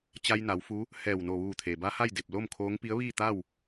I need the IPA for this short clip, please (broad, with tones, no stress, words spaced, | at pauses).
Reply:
t͡ɕa˧jna˩˧wfu˧˥ | hɛː˧˩wno˧˩ʋuː˧˩ t̪ʰeː˩ba˧˥ha˥˨jde˧˩p̚ lo˥˨mkʰoː˧˥ŋ pi˧˥ə̯ʋiː˥˨t̪a˥˨w